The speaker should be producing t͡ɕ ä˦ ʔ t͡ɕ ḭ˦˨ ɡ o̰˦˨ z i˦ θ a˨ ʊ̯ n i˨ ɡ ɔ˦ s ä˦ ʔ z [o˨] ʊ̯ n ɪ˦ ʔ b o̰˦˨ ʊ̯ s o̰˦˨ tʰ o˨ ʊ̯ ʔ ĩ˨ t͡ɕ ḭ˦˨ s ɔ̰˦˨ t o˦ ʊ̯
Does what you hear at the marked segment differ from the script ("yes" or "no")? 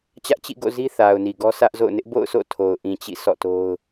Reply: yes